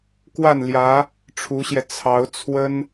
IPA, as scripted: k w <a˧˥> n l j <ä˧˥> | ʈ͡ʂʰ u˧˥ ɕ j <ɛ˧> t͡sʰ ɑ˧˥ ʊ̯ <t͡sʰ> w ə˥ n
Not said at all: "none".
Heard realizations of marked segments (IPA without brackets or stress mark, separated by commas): a˥˩, ä˧˥, ɛ˧, t͡sʰ